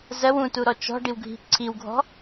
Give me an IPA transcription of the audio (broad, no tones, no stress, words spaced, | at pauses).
zɜw ũtuɾɔ t͡ʃɔ̤ɖiwɡʱi̤ ǀʰiwɡʱɔ̤